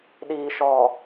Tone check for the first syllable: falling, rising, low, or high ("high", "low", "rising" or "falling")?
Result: low